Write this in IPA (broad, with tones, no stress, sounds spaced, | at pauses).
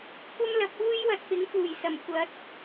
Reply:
kʷ ɐ˥ m l ɐ˨˥ p̚ uː˥ j w ɐ˨ t̚ p ɪ˨˥ ŋ f uː˨˩ j s ɐ˨˩ m kʷ ɐ˨˥ t̚